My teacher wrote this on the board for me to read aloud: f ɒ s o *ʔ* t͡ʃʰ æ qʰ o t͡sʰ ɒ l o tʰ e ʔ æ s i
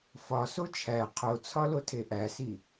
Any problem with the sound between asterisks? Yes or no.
yes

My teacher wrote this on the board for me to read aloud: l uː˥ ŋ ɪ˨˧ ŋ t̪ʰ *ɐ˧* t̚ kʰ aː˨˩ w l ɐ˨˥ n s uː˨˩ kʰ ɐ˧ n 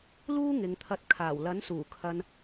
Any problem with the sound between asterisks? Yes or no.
no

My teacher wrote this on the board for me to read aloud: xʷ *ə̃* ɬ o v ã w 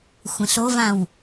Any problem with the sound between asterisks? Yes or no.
no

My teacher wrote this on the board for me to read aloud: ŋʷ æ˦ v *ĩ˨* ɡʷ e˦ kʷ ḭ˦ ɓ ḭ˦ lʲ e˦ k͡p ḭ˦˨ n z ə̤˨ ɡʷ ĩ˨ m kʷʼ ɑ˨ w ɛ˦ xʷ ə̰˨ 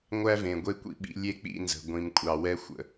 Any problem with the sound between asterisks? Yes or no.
yes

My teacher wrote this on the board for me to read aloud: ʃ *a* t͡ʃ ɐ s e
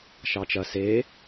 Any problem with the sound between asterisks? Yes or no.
yes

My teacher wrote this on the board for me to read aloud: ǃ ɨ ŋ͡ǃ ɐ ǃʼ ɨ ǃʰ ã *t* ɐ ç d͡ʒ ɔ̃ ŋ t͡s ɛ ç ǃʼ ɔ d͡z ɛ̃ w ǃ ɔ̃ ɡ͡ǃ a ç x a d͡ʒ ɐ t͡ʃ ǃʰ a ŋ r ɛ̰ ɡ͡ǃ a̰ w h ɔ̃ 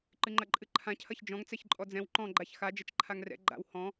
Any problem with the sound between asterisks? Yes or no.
yes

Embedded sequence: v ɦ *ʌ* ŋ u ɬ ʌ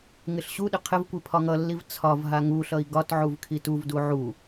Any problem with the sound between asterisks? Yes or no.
yes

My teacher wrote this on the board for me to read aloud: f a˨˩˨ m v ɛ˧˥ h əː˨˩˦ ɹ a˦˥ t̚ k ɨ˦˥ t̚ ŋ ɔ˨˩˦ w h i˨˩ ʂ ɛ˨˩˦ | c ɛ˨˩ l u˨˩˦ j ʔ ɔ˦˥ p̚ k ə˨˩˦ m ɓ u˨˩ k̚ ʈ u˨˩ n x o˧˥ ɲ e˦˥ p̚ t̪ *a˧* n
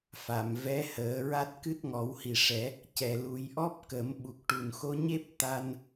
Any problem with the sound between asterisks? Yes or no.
no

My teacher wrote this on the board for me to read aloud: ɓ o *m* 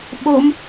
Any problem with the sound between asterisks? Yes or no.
no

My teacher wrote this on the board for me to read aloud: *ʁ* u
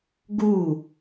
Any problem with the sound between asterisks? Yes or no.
yes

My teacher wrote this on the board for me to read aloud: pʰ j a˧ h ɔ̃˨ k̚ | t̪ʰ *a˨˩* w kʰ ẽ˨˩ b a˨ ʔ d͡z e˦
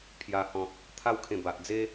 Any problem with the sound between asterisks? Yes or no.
yes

